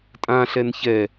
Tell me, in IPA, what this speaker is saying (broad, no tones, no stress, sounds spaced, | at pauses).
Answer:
tʼ ã ɬ ɛ n ç ɛ